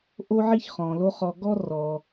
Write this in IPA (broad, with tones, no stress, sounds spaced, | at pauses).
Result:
ʔ o˥ ʕ i˥ ç χ ɔ̃˩ l o˦ χ ɔ˨ ɡ ɔ˥ r ɔ˩